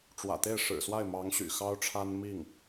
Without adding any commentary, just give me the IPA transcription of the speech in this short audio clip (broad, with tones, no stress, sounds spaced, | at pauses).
ʈ͡ʂ w ä̰˨˩ t̪ e˥˩ ɪ̯ ʂ ɻ̩˨˩ s w a˥˩ ɪ̯ m ɑ˧˥ ŋ ɕ y̰˨˩ x ɑ˥ ʊ̯ ʈ͡ʂʰ a˥ n m i˥˩ ŋ